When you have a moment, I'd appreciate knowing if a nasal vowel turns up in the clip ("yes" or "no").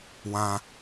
yes